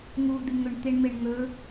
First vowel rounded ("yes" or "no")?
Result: yes